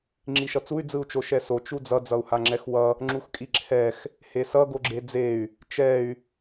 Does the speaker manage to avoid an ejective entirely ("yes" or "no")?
no